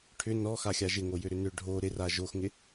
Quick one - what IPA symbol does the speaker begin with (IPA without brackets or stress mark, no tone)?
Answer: ʈʰ